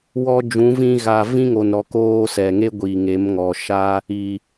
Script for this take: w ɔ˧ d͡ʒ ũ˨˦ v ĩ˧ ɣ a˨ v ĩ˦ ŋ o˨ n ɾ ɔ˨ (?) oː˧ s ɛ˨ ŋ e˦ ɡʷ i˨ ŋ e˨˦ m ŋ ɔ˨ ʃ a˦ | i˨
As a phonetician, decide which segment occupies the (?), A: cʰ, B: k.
B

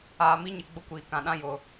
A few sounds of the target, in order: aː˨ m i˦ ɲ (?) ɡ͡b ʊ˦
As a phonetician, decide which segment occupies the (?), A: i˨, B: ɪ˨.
B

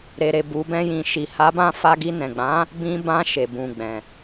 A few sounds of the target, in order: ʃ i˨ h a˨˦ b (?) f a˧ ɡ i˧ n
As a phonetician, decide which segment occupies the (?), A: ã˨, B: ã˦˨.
B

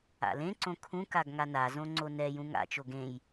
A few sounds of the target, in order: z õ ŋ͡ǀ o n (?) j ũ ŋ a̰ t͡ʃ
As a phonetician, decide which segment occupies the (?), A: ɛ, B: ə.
A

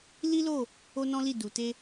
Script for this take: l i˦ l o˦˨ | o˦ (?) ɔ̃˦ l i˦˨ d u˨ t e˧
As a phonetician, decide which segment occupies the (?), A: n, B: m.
A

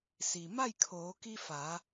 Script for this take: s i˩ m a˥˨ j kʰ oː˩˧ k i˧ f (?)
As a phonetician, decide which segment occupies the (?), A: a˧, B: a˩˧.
B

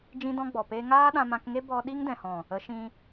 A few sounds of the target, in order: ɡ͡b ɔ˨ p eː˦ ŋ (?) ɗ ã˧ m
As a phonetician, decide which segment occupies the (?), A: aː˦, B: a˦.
A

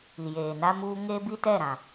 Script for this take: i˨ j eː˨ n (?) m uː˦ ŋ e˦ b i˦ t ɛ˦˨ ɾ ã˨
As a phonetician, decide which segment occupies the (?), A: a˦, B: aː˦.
A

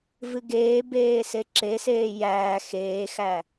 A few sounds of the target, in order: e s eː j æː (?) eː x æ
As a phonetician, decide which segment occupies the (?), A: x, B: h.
A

